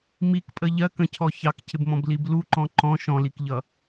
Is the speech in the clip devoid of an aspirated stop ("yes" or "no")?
no